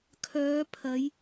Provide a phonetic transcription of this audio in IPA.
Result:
kʰœː˨˧pʰɐ˨˧j

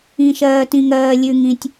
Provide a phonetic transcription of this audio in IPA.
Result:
ĩ˩ʃɜː˩tĩ˩ŋɜː˩ lʲʉ˩ŋĩ˩tʲ

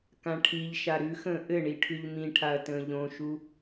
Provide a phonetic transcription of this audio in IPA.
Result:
kãʈʰiʎʃa ɾʉxə̃ː ʔɘɳi ʈʰʉʎmĩʈʰaɐ̯ tə̃ːʎõʃu

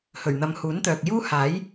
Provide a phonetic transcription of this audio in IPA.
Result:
hɵ˨˩ɥn̪ɐ˨mhuː˨˥nt̪œː˨k̚ juː˥ haː˨˥j

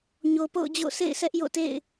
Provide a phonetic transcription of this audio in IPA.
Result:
ɲo˨po̰˦˨ʊ̯d͡ʑo̰˦˨ sʰḛ˦˨ɪ̯sɛ˦ʔjo̰˦˨tḛ˦˨ɪ̯

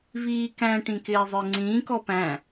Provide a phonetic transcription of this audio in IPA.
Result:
viːkæ̃ ʈĩkɪːzˤə˞ŋ͡ǀĩː kɔpæ̃

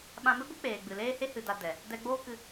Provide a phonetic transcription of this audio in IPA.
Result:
ɓã˧mɨ˦ɡʷɨ˦ k͡peː˨ɡ͡bɨ˨leː˦he˦ hɨ˧da˧ dɛ˨ | dɛ˧ ɡ͡boː˦kɨ˧

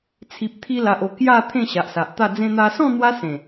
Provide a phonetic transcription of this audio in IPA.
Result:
t͡sʰi˨p̚t̪ʰi˧la˨ʔo˨˩ kja˥˧ t̪ʰẽ˥˧ɕa˨ʔsa˨ʔt̪a˥˧ d͡zẽ˧n̪a˧sɔ̃˥˧ n̪wa˦ sẽ˨˩

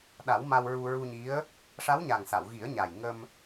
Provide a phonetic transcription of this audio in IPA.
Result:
ɗa˨˩˦wma˧wɹu˧ ɹu˧ɲi˧˥ə̯ | ʂa˧˥wɲa˨˩ŋ sa˨˩˨wɣi˨˩˦ə̯ɲa˨˩j ŋə˧m

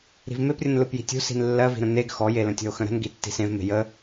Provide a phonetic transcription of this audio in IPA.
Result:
ɾi̤vmeprʲə̃n lɯpji̤tʲṳ si̤nlːɜvi̤ɾə̃ neɡ xɔje lə̃tʲɔ̤o̯xə̃ɾə̤n ɡitːi̤sẽv me̤jə

